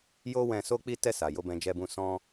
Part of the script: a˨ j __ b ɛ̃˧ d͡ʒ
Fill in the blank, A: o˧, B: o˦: A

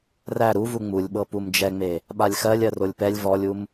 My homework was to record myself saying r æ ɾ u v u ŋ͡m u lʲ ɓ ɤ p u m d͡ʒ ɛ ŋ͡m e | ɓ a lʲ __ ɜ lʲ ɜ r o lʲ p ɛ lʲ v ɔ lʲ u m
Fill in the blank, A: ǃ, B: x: B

